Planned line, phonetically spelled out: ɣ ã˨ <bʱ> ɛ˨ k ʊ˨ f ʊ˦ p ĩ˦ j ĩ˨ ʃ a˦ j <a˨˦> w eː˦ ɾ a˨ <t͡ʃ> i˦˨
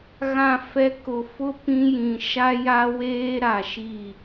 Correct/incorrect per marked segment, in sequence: incorrect: f, incorrect: a˦, incorrect: ʃ

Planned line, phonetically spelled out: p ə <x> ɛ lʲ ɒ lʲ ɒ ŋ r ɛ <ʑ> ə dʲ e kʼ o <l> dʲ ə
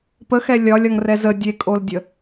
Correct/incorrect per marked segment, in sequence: correct, incorrect: z, correct

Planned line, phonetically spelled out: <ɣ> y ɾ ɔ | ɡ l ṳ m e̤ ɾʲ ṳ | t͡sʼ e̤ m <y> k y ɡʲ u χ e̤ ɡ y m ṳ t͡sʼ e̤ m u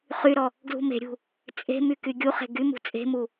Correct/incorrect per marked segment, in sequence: incorrect: χ, correct

